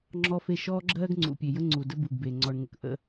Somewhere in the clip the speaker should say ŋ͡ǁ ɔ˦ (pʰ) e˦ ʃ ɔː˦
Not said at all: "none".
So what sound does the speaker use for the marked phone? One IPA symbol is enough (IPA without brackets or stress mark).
f